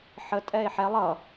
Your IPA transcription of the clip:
ħ ə tʼ ɛ e̯ ħ ɛ lˠ ʌ

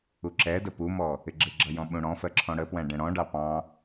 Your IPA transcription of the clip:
u ǁ ɛ d ə p u m ɔ | ɪ ɡ͡ǁ ɪ ɡ͡ǁ ʌ j ɔ̃ ɓ ũ ɽ ɔ̃ f ɜ ǁʰ ɔ̃ ɽ ə p w æ̃ ɖ ɛ̃ ɽ ɔ̃ ɖ ɑ p ɑ̃

